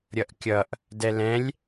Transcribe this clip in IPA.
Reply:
ɾʲ ʌ ʔ kʲ ʌ ʔ | d ɛ l ɛ̃ lʲ

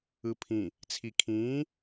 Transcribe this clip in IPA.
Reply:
ɯ pʰ ĩ | t͡sʰ i kʰ ĩː

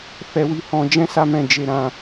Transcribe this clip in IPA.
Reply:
f ɛ˧ w i˧ h ɔ̃˧ d͡ʒ ɛ̃˦ s a˦ m ɛ̃˦˨ d͡ʒ e˧ ɾ ã˧

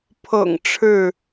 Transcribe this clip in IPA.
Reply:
pʰ ɤ̰˨˩ ŋ ʈ͡ʂʰ ɻ̩˥˨

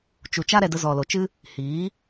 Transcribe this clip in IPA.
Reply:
t͡ʃ u˧ t͡ʃ a˦ ɾ ɛ˧ d ə˧ z ɔ˨ l o˨ t͡ʃ ɨ˦ | h iː˨˦

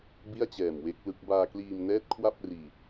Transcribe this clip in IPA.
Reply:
b i˥˩ a̯ t͡ɕ ɛː˨˩ m w e˦˥ k̚ l ɯ˦˥ k̚ b aː˧ k l iː˧ m n ɛː˦˥ t̚ kʰ w a˥˩ p̚ r iː˧

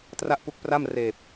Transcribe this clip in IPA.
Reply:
t r a˥˩ ʔ p u˦˥ k̚ p r a˥˩ m r eː˨˩ p̚

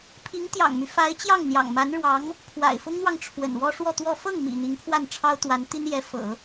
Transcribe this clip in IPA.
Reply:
pʰ i˧˥ ŋ t̪ j ɑ̰˨˩ ŋ m y˦ f a˧˥ ɪ̯ t͡ɕ j ɑ˥˩ ŋ n̪ j ɑ̰˨˩ ŋ m a˧˥ n ɻ w ɑ˧˥ ŋ | pʰ w a̰˨˩ ɪ̯ f ʊ˥ ŋ n̪ w ɑ˨ ŋ ʈ͡ʂʰ w ə̰˨˩ n w ɔ˥ ʂ w ɔ˥˧ t̪ w ɔ˥˧ f ɤ˥˩ ŋ m ḭ˨˩ n̪ i˧˥ ŋ pʰ w a˥˩ n ʈ͡ʂʰ ɑ˥ ʊ̯ t̪ w a˧˥ n t̪ i˥ n j ɛ˧˥ f ɤ̰˨˩˦

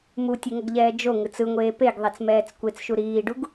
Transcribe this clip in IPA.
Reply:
m u tʲ e ŋ ʌ ɡ ʎ ɛː d͡ʒ o ŋ ɯ t͡s ɯ ŋʷ eː p e ɡ ðˤ ɛ t͡s m ɛː t͡s kʷ e t͡s ʃ u ɾ iː ɖ u ɡ

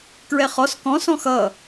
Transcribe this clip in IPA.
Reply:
k ɹ ɛ χ ɔ s k ɔ̃ s ɔ̃ x ʌ

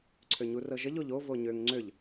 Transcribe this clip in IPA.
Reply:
ǀʰ ø ɲ u r ɤ ʒ ə ʎ o ʎ o v o ɲ ø ŋ ŋ͡ǀ ø ʎ

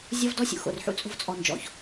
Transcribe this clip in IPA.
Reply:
zʲ ɔ˦ v d ɔ˦ sʲ ṵ˨ x o̰˨ r ħ ṵ˦ t͡sʼ o̤˦˨ v t͡sʼ ɔ˨ n d͡ʒ ɔ̰˨ ç

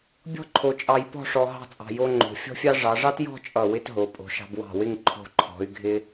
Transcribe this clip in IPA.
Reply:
bʲ ɔ̤˥ ǃʰ o˧ t͡ʃʼ ɑ˧ j p ɔ̤˥˧ ʂ ɔ˧ ɦ ɑ̤˥˧ t͡sʼ ɑ̤˧ j o˥ ŋ͡ǃ o̤˧ fʲ ɔ̤˥ fʲ ɑ˥ ʐ ɑ˩˧ ʐ ɑ˥ t j ɔ̤˥˧ t͡ʃʼ ʌ˧˩ w ɪ˥ t ɦ o˩˧ pʼ o̤˩˧ ʃ ɑ̤˧ b w ɑ̤˧˩ w ɪ˥˧ ŋ ǃʰ o̤˧˩ ǃʰ ɔ̤˩˧ y̯ ɡʱ ɪ˧

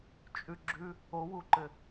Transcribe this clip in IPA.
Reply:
t͡ʃʼ ʉ ɡ͡ǁ ʉ | o w u ǃ ɘ

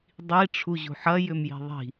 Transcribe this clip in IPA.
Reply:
dˤ i ʈ͡ʂʰ u ʑ ṳ ħ ɐ j ʏ m j i̤ ðˤ i̤

